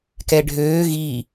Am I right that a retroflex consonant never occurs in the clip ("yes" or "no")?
no